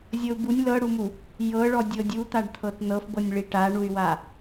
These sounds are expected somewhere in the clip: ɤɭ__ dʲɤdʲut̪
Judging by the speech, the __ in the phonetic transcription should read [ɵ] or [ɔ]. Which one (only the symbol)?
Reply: ɔ